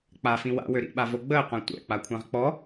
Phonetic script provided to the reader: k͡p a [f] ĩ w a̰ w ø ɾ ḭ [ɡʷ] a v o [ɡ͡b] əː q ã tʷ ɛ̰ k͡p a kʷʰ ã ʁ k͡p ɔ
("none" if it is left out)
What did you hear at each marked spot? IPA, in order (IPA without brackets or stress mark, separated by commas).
f, ɓ, ɡ͡b